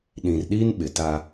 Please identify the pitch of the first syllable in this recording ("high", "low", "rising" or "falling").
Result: low